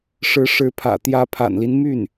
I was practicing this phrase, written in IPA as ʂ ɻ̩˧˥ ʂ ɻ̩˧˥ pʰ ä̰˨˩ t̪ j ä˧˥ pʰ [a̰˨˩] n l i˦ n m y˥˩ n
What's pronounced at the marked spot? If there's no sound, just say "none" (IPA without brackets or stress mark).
a̰˨˩